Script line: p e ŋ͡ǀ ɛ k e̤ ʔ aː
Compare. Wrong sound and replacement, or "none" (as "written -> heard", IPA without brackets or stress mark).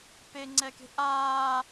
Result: none